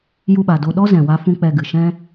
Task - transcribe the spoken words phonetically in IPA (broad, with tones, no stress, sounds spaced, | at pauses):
j u˧ ɓ a˨ d o˧ ɗ ɔ˦ z ɛ̃˨ w a˦ f ũ˦ k͡p ɛ˧ ɡ ɨ˨ ʃ ɛ̃˦